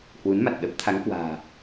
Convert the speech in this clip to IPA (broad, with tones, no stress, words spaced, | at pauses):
hwu˨˦nma˨˩t̚ɗə˦˥p̚ t̪ʰa˨˦ŋkwa̤ː˨˩